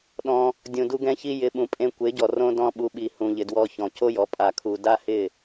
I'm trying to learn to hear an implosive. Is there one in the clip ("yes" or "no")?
yes